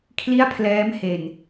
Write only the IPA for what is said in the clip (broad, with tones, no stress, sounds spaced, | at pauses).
kʰ l i˥˩ a̯ pʰ l ɛː˦˥ m h e˨˩ n